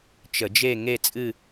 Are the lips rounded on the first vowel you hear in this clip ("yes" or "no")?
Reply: no